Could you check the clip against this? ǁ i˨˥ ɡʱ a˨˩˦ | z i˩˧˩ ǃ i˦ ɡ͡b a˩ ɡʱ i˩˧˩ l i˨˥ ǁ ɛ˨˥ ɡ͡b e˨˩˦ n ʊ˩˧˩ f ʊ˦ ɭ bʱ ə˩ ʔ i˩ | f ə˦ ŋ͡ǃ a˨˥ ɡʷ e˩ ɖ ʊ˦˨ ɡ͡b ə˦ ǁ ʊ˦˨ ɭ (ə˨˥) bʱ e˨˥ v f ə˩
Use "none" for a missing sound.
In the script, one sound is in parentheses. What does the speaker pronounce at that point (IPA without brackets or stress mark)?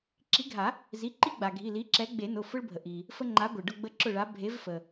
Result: a˨˥